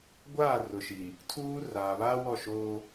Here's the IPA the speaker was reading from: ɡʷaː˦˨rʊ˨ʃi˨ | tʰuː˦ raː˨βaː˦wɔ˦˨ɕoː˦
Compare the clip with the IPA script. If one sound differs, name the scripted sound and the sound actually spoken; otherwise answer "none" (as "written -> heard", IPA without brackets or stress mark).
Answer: ɕ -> ʃ